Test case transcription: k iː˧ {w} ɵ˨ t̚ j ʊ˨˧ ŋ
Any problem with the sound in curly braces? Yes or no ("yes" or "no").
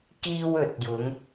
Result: no